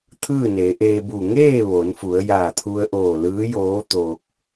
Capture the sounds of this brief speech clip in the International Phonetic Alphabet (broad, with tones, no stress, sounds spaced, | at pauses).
t̪ʰ ɯː˥˨ n e˩˧ ʔ eː˧ b u˧˩ ŋ eː˥˨ ʋ oː˩˧ n f u˩˧ ə̯ j aː˧˩ t̪ʰ u˧ ə̯ ʔ oː˧˩ l ɯː˧˥ j oː˧˥ t̪ oː˧ k̚